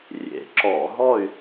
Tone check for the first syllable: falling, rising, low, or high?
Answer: rising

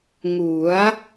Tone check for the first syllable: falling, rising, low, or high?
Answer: rising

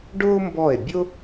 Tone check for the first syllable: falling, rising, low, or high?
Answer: high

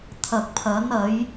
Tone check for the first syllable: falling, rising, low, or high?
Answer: low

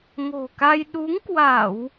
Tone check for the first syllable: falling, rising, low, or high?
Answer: low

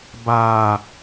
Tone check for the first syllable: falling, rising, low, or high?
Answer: low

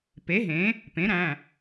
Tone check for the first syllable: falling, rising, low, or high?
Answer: rising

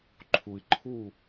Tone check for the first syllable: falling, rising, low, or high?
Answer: low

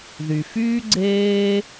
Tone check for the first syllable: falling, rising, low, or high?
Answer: low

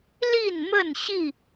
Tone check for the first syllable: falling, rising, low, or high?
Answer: falling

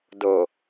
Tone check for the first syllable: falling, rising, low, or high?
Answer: low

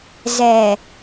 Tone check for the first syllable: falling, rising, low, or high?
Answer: low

